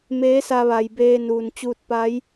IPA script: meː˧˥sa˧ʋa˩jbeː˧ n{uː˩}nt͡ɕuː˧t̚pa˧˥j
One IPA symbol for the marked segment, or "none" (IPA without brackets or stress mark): uː˩